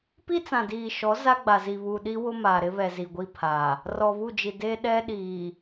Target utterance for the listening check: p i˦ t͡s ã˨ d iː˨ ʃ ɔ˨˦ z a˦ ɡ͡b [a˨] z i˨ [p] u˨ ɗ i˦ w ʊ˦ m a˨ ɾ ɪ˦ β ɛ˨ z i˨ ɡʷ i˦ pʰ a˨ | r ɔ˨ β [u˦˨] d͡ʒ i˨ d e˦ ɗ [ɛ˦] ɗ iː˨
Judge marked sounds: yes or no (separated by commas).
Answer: yes, no, yes, yes